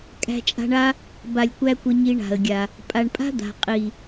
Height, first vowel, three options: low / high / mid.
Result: low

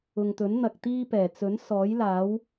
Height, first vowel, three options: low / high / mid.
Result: high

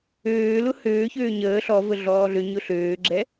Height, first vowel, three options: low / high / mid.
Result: mid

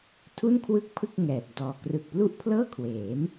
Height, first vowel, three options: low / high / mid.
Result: high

